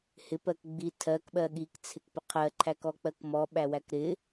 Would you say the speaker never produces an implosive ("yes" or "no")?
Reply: no